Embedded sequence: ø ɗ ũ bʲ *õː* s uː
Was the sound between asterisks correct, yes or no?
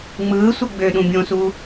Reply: no